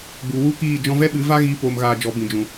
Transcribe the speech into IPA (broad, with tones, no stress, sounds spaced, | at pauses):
ɡ͡b u˨ w u˦˨ k iː˦˨ d͡ʒ ɔ̃˧ v ɛ˦ ɓ ɨ˨˦ v a˦ ɣ iː˦ p oː˧ m ɣ aː˧ d͡ʒ ɔ˨˦ b ĩ˨ d͡ʒ ũ˨